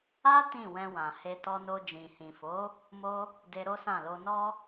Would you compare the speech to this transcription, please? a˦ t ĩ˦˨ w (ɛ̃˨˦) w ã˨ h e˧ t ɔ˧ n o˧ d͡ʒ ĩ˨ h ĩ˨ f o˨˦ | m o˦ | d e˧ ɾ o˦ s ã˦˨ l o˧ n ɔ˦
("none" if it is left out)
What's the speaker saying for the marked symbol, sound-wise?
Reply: ɛ̃˧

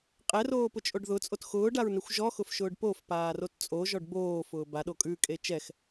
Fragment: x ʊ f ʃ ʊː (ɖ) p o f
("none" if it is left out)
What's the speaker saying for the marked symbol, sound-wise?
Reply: ɖ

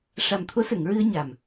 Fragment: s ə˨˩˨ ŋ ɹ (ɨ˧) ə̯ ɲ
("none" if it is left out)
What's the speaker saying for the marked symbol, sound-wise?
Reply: ɨ˧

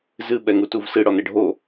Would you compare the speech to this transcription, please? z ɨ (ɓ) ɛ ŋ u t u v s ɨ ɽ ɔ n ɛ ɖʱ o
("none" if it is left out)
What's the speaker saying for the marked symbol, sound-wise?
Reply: ɓ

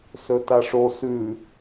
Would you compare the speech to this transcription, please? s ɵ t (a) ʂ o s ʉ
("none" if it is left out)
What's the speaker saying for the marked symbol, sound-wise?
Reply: a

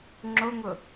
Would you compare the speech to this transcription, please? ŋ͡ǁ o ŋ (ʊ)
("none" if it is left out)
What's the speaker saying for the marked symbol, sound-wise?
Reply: ʊ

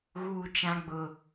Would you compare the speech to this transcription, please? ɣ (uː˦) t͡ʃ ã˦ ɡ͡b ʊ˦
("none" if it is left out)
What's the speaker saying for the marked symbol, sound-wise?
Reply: uː˦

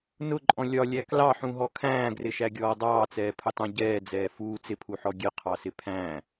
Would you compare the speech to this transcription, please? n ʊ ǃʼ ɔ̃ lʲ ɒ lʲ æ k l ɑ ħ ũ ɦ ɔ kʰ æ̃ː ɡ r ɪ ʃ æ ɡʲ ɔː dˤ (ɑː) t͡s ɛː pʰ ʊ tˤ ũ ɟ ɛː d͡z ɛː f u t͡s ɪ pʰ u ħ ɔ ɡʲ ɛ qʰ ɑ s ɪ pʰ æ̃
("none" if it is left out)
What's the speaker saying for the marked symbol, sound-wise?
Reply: ɑː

